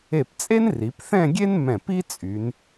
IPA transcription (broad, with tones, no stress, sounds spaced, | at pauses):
e˧˩ p t͡sʼ e˥ n r i˩˧ p θ ɛ̃˥˧ ɡʲ e˥ n m ɛ̃˧˩ p i˥ t͡sʼ y˩˧ n